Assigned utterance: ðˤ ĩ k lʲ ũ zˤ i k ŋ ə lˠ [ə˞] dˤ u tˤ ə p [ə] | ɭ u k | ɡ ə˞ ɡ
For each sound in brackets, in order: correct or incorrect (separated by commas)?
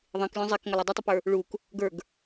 incorrect, incorrect